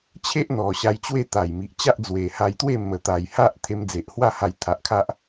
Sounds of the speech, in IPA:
t͡ɕʰ e˦ ʔ n̪ ɔ˨˩ ɕ a˧ j t͡ɕ w e˥˧ t̪ a˨˩ j m i˨ ʔ t͡ɕ a˦ ʔ d͡z w e˨˩ h a˧ j t̪ w e˥˧ m ə˨˩ t̪ a˨˩ j h a˦ ʔ t̪ʰ e˧ m d͡z e˨ ʔ h w a˥˧ h a˧ j t̪ʰ a˨ ʔ kʰ a˦ ʔ

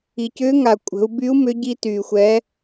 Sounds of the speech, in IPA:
i˩ c ʏː˧˥ ŋ a˩ kʷʼ ə̤˩˧ u̯ b y˧˥ u̯ m ʏ˧˥ ɟ i˧ t yː˩ xʷ ɛ˩˧

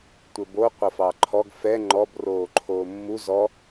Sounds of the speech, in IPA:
tʷ ɘ b o qʷ ɐ f ɑ ǃʰ ɔ ɡ f ɛ ŋ͡ǃ ɔ b r oː ǃʰ oː mː u z ɔ

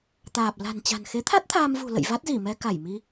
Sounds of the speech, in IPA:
t̪ aː˨˩ p̚ l a̤˨˩ n t͡ɕ a̤˨˩ n x e˨˦ t̪ʰ a˦˥ t̚ t̪ʰ aː˧ m v ṳ˨˩ l ə̰˧˨ j v a˦˥ t̚ z i˧˩ m ɛ˧ k a˧˩ j m i˧

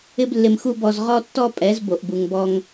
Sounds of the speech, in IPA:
ɪ˦ b lː ɪ˧ m x u˦ b ɔ˧ z ʁ ɔ˦ tː ɔ˦ pʼ ɛ˨˦ z b o˨ ʔ b u˨ ŋ b ɔ˧ ŋ

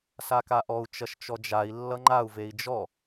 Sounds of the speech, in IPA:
s a k a ʔ ɔ u̯ t͡ʃ ʌ ʃ t͡ʃ ɔ d͡ʒ a i̯ lː ʌ ŋ͡ǃ a u̯ v e i̯ d͡ʒ ɔ

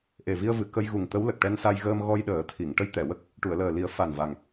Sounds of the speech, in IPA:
ʔ e˨˩ v i˧ ə̯ v ɨ˨˩ k ə˧ j ɣ u˨˩ ŋ t̪ ə˧˥ w l ə˨˩ k̚ ʈ ɛ˧ n s a˧ j ɣ əː˧ m ɣ ɔ˧ j ɗ əː˨˩˦ t̪ʰ i˨˩˨ ŋ ʈ ə˧˥ j t̪ ɛ˨˩˨ w ə˦˥ k̚ | ʈ u˨˩˨ ə̯ l əː˨˩ l i˨˩˦ ə̯ f a˨˩ n v a˨˩ ŋ

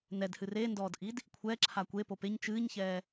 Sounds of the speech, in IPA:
n ɛ d h ɨ r e n d ɔː d ʔ i d | kʷʰ ɛː ǁʰ a kʷ e p o p e ɲ t͡ʃ ɨː ɲ ç ɛː

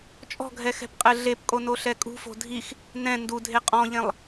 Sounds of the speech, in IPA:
t͡ʃʼ ɔ̤ ɡʱ ɛ x ɛ̤ p qʼ ɘ ɮ e p kʼ o n o ɬ ɛ kʼ ṳ f o̤ dʱ i x | n ɛ̃ n d u dʱ e qʼ ɔ̃ ʎ ẽ lˠ

